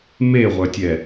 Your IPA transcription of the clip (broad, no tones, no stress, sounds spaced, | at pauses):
m e ʁʷ œ tʲ ɛ